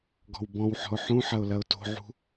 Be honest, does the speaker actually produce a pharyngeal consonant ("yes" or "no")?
yes